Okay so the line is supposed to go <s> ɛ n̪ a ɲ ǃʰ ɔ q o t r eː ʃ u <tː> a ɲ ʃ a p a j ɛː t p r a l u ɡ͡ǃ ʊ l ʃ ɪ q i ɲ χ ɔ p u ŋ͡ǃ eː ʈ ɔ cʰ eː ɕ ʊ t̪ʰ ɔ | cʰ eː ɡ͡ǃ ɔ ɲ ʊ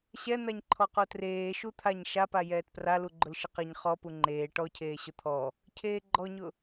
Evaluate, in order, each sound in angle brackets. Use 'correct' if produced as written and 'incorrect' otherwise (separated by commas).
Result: incorrect, incorrect